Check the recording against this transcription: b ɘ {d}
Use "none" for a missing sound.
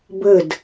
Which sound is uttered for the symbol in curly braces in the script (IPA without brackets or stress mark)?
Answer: d